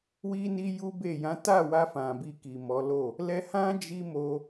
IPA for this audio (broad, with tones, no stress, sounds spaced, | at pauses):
w i˦ n i˦ j u˦ b e˦˨ j ã˨˦ t a˦˨ w a˧ f ã˨ b i˧ k i˨ m ɔ˨˦ l o˦˨ | l ɛ˧ h ã˦ d͡ʒ i˦ m o˧